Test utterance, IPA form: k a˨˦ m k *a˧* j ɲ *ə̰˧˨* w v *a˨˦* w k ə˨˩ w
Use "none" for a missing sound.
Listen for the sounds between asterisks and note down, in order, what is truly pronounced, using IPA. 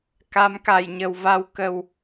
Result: a˧˩, ə˨˩, a˧

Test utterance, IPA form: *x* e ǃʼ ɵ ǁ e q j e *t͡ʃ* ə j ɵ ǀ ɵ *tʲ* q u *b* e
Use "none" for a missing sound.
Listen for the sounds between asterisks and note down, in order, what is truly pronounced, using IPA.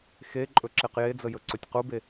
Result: x, d͡z, tʲ, b

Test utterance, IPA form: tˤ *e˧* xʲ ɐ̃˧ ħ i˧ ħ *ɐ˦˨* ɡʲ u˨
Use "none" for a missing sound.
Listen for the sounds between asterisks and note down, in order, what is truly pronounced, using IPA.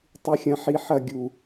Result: ɨ˧, ɐ˦˨

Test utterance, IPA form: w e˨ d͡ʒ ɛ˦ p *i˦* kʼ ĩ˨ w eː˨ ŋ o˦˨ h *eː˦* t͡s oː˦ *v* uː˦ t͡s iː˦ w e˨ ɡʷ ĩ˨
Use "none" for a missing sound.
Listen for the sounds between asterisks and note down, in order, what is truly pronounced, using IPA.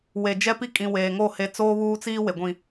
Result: i˦, e˦, β

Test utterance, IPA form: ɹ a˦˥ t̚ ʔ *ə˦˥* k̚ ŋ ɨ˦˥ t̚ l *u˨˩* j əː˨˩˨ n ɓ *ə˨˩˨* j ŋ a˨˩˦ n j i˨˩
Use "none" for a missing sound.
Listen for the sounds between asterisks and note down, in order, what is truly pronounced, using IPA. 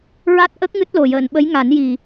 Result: ə˦˥, o˨˩, ə˧˥

